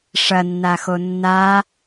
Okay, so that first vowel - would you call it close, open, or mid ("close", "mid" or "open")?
open